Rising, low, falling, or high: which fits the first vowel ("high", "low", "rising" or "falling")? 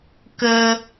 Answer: high